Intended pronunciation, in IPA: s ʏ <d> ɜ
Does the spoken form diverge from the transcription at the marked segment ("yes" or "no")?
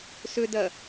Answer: no